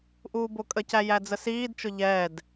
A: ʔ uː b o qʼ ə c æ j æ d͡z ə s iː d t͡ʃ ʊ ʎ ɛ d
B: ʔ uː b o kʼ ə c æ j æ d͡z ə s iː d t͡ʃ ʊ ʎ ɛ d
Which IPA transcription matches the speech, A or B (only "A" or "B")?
B